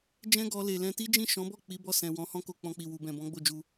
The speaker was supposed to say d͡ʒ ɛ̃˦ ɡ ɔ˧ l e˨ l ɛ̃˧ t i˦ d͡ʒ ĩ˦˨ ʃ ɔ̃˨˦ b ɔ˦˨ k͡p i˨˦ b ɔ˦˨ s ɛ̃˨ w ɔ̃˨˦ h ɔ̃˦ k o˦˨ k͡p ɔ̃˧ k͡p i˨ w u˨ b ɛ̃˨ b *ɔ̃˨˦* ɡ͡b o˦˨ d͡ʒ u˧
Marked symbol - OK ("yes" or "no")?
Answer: yes